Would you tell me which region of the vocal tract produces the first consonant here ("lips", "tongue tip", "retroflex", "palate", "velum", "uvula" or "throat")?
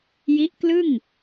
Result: palate